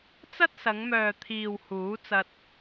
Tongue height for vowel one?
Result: low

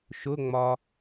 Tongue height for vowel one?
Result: high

